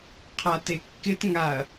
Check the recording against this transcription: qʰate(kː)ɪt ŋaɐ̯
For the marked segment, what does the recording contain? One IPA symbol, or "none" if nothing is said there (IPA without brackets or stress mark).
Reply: kː